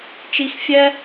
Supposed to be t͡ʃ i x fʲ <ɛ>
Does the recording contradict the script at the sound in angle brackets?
no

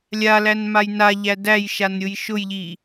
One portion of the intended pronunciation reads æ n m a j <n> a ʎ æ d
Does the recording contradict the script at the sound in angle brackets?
no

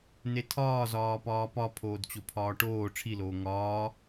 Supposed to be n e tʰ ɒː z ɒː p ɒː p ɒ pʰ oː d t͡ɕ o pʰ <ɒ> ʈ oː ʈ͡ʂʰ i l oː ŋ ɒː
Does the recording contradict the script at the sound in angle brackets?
yes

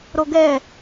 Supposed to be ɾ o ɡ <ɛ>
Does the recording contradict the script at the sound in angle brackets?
no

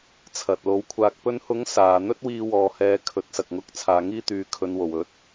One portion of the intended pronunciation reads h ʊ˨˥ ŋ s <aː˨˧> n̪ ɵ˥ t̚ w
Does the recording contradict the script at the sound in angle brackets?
yes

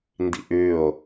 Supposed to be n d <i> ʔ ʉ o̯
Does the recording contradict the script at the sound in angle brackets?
yes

